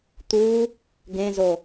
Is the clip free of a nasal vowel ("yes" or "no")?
no